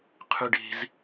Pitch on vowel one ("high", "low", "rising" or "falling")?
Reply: high